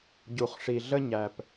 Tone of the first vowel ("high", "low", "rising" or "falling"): low